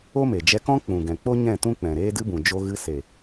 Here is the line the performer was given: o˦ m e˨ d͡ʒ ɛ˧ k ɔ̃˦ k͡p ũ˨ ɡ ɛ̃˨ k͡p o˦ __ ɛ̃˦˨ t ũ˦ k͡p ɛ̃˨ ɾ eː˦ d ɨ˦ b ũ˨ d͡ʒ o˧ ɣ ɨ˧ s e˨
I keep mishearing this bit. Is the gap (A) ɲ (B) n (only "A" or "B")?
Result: A